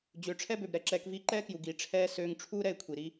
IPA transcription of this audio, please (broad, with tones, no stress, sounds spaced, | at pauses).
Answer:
d͡ʑ ø˨˦ ʈ͡ʂʰ ɛ˦ b ø˨ b ɾ ɛ˧ ǁ ɛː˧ k v iː˦ ǃ ɛː˦ k j u˨ ɡ iː˨ ʈ͡ʂʰ ɛː˦ s øː˧ ŋ ʈ͡ʂʰ uː˦ ɾ ɛ˧ ɪ̯ kʷʰ i˨ ɾ i˦